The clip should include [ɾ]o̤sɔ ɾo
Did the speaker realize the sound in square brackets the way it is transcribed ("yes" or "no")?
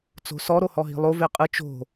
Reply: no